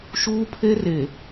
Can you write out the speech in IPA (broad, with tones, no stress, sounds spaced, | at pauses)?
ʃ uː˦ pʰ e˦ r e˨